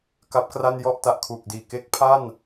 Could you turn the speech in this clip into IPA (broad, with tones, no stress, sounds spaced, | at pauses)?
k a˦˥ p̚ k r a˥˩ n j ɔ˥˩ ʔ t a˨˩ ʔ kʰ uː˨˩ k̚ d iː˨˩ k e˦˥ k̚ pʰ a˥˩ n